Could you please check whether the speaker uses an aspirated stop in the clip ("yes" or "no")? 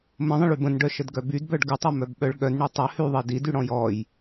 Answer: no